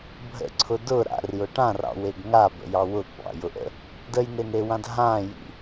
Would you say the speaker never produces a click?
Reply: no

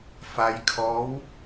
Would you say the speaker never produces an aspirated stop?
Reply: no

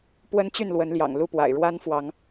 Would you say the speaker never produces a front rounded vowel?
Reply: no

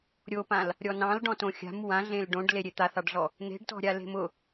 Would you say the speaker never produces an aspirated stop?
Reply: yes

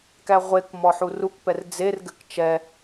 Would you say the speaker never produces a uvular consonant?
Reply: no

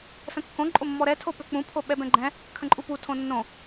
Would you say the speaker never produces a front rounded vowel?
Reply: no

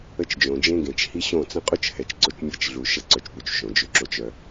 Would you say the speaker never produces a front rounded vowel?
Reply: no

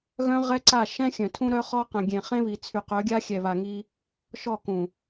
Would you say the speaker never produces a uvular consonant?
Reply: no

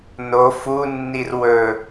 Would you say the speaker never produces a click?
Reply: yes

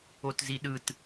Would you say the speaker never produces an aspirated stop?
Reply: yes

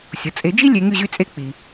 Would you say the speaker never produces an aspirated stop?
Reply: yes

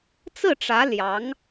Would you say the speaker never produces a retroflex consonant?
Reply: no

